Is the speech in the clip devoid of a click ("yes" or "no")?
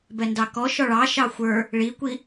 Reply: yes